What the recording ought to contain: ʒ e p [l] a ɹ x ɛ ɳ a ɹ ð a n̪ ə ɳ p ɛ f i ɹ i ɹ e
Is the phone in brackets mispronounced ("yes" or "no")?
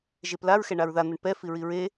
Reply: no